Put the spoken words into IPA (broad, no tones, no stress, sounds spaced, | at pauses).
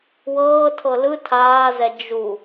w ɤː tʰ ɤ l ɯ tʰ aː z ɛ d͡ʒ u